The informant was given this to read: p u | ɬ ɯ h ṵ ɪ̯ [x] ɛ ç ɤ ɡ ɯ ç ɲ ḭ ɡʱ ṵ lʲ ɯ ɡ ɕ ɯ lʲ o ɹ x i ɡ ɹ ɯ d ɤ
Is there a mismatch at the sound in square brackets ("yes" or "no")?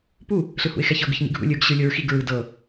no